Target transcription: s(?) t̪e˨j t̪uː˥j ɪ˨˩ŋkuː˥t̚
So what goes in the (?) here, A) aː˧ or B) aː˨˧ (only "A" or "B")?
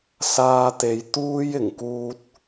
A